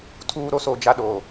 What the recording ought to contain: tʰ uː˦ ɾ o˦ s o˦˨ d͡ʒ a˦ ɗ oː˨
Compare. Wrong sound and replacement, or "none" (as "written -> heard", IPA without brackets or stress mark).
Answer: none